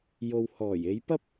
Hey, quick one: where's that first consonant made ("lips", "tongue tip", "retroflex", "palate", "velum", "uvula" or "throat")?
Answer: palate